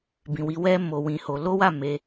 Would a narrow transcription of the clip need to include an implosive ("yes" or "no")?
no